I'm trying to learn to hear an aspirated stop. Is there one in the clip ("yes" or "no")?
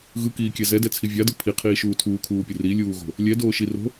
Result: yes